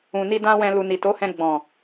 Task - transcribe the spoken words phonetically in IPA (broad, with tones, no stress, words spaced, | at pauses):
ũ˨ni˧ dã˧ wɛ̃˨ lu˨ni˨to˨˦hɛ̃˧ ɡ͡bɔ̃˨